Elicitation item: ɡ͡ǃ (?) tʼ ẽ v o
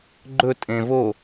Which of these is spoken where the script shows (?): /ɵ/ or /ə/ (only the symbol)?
ɵ